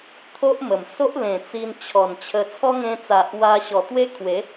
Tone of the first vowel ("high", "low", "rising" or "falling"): high